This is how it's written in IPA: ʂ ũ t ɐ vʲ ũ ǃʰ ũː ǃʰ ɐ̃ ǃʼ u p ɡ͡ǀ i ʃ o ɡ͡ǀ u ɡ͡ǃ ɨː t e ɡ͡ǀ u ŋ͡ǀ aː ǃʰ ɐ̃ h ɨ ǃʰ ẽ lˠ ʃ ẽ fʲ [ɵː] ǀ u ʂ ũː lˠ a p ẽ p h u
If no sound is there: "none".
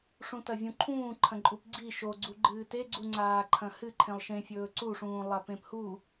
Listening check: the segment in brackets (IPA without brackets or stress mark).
ɵː